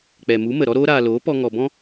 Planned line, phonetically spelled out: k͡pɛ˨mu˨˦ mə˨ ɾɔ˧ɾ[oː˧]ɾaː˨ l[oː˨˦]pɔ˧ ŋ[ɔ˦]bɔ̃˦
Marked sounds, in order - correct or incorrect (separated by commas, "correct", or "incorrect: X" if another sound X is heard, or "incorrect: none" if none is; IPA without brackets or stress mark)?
correct, correct, incorrect: ɔ˨